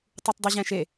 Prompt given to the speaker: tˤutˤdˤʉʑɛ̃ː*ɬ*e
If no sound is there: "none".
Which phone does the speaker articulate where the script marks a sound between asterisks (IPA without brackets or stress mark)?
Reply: ʃ